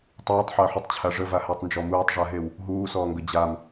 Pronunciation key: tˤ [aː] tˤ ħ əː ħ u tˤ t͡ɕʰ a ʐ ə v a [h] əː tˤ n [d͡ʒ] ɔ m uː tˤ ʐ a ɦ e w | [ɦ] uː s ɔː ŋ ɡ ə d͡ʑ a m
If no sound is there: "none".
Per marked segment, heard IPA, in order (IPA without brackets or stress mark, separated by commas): aː, h, d͡ʒ, ɦ